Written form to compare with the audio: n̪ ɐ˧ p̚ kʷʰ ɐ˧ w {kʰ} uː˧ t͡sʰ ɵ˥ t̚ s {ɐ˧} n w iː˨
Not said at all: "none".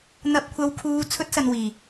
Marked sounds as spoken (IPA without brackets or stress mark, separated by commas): kʰ, ɐ˧